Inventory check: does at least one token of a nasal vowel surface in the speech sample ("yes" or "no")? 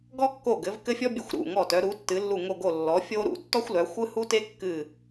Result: no